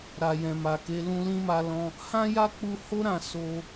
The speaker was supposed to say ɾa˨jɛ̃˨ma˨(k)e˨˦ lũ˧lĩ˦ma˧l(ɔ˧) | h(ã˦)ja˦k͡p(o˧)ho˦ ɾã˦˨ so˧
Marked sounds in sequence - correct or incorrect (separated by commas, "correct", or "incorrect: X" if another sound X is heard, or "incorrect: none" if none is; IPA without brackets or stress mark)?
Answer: correct, incorrect: ɔ̃˧, correct, incorrect: u˧